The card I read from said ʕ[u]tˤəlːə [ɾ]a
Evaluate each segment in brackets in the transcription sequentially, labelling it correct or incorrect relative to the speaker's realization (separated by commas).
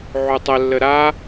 correct, correct